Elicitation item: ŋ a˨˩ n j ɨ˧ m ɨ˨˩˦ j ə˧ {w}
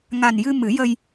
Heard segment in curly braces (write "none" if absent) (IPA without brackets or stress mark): j